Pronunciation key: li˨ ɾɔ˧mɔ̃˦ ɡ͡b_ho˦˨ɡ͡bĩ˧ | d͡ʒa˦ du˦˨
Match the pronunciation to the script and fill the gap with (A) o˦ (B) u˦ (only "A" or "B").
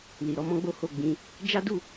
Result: A